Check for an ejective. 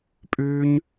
present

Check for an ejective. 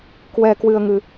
absent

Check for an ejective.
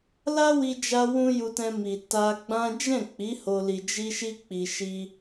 absent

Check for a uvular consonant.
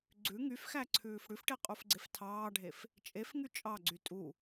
present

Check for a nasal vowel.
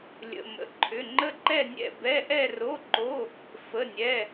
absent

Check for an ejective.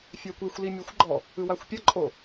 present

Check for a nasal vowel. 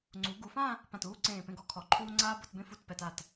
present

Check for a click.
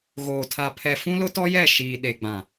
absent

